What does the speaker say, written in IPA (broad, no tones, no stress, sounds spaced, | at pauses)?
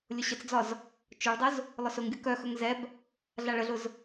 lʲ ʊ ɕ ə t͡s d͡z ɒ z | t͡ʃ ʊ ɭ dˤ ʊ z | lˠ ʊ s ʊ ŋ ɡʲ ʊ k œ x ɵ ŋ z ɛ b | ɮ a ɭ ə ɮ ʊ z